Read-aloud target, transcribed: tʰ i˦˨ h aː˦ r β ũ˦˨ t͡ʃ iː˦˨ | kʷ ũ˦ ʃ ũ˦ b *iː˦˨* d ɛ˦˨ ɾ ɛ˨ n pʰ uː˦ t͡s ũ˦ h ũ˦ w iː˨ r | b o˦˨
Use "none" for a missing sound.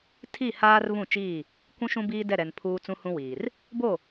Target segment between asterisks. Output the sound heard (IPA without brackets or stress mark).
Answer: iː˦